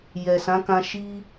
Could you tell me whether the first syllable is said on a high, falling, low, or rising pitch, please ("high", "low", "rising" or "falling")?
low